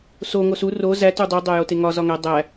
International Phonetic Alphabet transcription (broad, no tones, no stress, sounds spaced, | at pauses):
s o ŋ o s u r o z æ t u dˤ u dˤ æ j o t e ŋ ɒ z ɒ ŋ æ dˤ æ